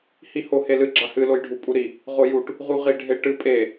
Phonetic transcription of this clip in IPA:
h i h o h e l ɨ ɡ͡ǁ a h ɨ l o j ɖʱ u pʼ u ɾ i | ʁ o j u ʈ | ʁ u ʁ i ɖʱ e ʈ ɨ pʼ e

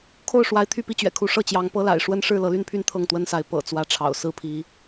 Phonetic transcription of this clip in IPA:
kʰ o˥˨ ʊ̯ ʂ w a˨˦ ɪ̯ t̪ʰ y˥˨ p i˦ t͡ɕ ɥ ɛ̰˨˩ kʰ u˨˦ ʂ ɤ˥˨ t͡ɕ j ɑ˨˦ ŋ p ɤ˦ l a̰˨˩ ɪ̯ ʂ w ə˦ n ʂ ɻ̩˥˨ l ɤ˨˦ l y˦ n pʰ y˦ n t̪ʰ ɤ˥˨ ŋ t̪ w ə˦ n s a˨˦ ɪ̯ p ɤ̰˨˩ t͡s w ä˨˦ ʈ͡ʂʰ ɑ̰˨˩ ʊ̯ s ɹ̩˦ pʰ i˨˦

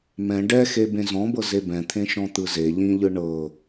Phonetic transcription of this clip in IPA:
m ɛ̃ ɖ ɛ x e b ẽ z ɔ̃ b ɤ z e b ɛ̃ t̪ʰ ẽ ʃ ɔ̃ t̪ ɯ z e ʎ ĩ ʎ ɯ ɳ ɤ

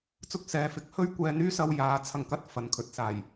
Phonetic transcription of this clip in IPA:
t͡s ʊ˧ k̚ s ɛː˨ f ɪ˨˥ k̚ h ɵ˥ ɥ kʷ ɛː˧ n̪ yː˥ s ɐ˧ w j aː˨˥ t͡sʰ ɐ˧ ŋ k ɐ˥ t̚ f ɐ˨ n kʰ ɵ˨ t̚ s aː˨˩ j

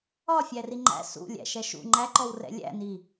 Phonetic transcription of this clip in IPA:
ɒ fʲ æ r i ŋ͡ǃ æ̰ s ṵ lʲ æ̰ ʃ ɛ ʃ ṵ ŋ͡ǃ æ ǃ ɔ w r ɛ̰ lʲ æ̰ n i

